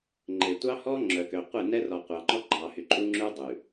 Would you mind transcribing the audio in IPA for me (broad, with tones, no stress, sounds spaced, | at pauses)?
ŋ͡ǃ e˨ tʷ ɑ˦ h ɔ˦ ŋ͡ǁ œ˨ k ø˨ qʷ e˦˨ n ɛ˦ r ɔ˨ qʷ ɑ˨ ŋ͡ǃ ɔ˦ ɡ͡ǃ ɑ˨ h y˨ ǃʼ u˦ ŋ͡ǁ ʉ˦ dˤ ʉ˨